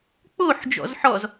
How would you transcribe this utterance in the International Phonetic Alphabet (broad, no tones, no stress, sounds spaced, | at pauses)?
k͡p o ħ d͡ʒ ɔ̰ z ħ ɔ z